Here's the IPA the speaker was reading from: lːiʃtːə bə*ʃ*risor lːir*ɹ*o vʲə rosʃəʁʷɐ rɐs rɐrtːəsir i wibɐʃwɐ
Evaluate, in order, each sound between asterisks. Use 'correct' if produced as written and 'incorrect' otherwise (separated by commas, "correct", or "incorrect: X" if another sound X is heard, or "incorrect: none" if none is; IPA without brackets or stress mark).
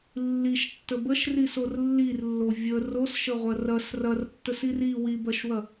correct, incorrect: lː